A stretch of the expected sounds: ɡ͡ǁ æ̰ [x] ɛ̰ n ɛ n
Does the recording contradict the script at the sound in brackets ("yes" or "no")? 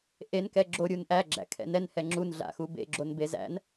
yes